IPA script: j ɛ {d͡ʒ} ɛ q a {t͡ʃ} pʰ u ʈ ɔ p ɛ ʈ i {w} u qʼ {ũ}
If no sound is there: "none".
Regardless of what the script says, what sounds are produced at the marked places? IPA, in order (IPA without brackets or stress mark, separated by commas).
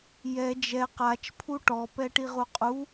d͡ʒ, t͡ʃ, ʁ, u